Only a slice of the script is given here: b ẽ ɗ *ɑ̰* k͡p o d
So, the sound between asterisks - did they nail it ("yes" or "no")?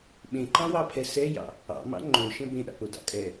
yes